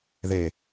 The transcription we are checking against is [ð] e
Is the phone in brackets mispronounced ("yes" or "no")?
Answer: no